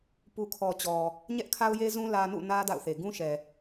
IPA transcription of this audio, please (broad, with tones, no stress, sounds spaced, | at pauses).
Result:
p u˨ kʰ ɔ˨ t͡ɕ ɔ˨ | ɲ ɛ˦ ʔ kʰ a˦ ʊ̯ j e˦ z ũ˦ l ä˦ n ṵ˦˨ n ä˦ d a̰˦˨ ʊ̯ θ e˨ ɡ ũ˦ ʃ ɛ˨